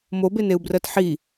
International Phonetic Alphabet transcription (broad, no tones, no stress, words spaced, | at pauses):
mobeneu̯brɜt ħi